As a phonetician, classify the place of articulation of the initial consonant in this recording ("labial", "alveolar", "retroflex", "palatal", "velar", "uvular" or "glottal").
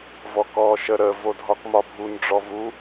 labial